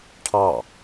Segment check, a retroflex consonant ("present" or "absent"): present